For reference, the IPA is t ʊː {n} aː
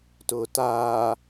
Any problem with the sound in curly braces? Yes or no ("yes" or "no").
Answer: yes